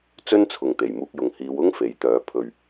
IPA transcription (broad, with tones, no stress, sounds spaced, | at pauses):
t͡s ɵ˥ n t͡sʰ ʊ˨ ŋ t̪ e˨˩ j m uː˧ k̚ j ʊ˨ ŋ h iː˨˧ w ʊ˥ ŋ f e˨˥ j t̪ œː˨˥ pʰ ɵ˨ ɥ